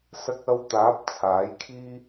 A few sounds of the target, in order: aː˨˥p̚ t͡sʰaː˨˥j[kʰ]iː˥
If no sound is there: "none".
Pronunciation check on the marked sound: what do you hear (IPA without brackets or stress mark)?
kʰ